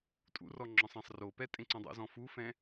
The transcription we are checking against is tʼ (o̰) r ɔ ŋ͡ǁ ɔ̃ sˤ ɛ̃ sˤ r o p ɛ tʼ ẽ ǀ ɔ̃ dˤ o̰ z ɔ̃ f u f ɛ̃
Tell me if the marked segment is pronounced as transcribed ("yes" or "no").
no